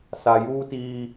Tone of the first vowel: low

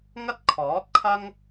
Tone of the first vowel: high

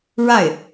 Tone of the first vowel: falling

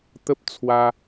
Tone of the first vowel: high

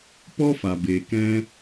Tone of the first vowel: high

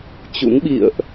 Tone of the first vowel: rising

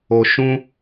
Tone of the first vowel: low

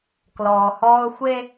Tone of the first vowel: low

